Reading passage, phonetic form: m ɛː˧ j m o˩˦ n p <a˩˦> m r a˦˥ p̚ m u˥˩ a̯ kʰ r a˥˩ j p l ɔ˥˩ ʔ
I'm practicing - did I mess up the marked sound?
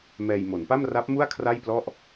yes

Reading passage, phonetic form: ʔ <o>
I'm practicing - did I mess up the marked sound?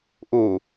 yes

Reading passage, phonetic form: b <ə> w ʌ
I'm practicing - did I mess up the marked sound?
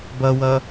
yes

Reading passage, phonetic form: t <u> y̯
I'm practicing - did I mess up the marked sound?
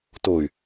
yes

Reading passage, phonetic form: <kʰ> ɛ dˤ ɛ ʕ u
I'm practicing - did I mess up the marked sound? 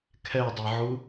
no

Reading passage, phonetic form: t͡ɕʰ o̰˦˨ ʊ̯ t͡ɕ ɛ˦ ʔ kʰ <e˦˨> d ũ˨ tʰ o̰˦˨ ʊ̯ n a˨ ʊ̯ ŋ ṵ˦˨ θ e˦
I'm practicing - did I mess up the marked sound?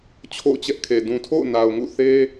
yes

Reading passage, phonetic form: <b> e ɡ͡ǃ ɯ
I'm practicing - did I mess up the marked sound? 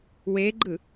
yes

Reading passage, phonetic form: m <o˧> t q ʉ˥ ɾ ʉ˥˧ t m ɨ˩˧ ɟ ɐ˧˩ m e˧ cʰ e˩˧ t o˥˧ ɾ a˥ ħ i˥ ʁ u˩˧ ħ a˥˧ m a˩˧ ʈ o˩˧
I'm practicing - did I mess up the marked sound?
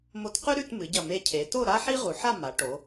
no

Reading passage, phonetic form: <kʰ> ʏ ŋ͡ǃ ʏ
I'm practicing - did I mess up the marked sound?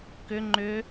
yes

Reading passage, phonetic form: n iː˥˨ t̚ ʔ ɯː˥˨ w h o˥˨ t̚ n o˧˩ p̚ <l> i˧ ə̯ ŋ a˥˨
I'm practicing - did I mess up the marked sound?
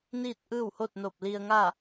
no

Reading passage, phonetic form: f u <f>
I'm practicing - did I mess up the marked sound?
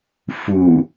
yes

